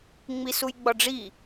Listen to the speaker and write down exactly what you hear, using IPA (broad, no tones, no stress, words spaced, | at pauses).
ŋ͡misujɡ͡bɒɖ͡ʐi